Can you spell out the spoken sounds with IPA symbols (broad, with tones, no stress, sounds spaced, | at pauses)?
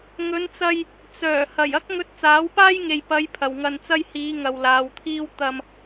ŋ ɵ˨˧ n t͡s ɐ˧ j | t͡s œː˨˩ h ɐ˨˩ j ɐ˥ k̚ ŋ ɵ˧ t̚ t͡s aː˨˥ w p aː˥ j ŋ e˨ j p ɐ˨˧ j pʰ ɐ˨ w ŋ ɐ˧ n t͡s ɐ˥ j h iː˨˧ ŋ ɐ˨ w l aː˨˧ w t̪ʰ iː˥ w t̪ ɐ˧ m